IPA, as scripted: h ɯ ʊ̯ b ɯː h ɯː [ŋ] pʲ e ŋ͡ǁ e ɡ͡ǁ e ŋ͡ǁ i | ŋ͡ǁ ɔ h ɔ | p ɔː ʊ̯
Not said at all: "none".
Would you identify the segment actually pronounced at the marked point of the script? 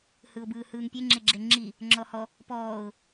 ŋ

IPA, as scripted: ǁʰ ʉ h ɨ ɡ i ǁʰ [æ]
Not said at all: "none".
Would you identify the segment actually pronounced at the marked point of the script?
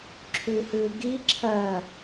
ɜ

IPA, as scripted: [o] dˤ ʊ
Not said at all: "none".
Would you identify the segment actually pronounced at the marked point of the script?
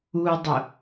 u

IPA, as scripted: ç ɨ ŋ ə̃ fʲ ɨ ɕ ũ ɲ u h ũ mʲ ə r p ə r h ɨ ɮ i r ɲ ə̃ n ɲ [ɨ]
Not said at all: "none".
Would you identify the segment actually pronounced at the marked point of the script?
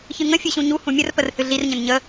ə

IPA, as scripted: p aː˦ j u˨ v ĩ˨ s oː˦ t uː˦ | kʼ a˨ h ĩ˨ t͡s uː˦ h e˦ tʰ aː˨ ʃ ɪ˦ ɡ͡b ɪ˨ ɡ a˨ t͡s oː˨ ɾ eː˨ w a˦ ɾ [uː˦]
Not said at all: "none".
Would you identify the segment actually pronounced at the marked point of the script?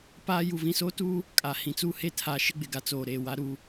u˦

